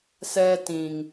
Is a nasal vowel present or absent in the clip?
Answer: present